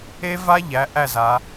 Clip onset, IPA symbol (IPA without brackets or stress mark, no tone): e